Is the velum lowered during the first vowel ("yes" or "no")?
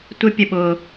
no